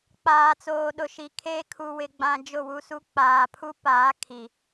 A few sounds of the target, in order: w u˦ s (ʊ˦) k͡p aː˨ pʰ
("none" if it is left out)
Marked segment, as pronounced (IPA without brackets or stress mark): u˦